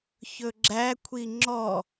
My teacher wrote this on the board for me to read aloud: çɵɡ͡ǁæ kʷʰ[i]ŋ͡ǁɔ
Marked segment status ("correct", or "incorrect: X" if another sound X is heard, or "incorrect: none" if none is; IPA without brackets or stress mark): correct